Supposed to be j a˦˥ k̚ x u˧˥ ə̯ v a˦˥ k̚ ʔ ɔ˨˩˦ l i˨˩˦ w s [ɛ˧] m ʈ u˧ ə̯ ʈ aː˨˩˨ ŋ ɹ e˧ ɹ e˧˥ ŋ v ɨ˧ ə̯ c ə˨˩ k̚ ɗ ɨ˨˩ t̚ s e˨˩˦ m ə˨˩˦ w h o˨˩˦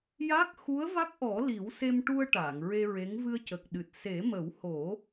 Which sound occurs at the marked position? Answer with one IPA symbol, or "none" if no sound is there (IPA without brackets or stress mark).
e˧